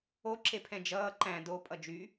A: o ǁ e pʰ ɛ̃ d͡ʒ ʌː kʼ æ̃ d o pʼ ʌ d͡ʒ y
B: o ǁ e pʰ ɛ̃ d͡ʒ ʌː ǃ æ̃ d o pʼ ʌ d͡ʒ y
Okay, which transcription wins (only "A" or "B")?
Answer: B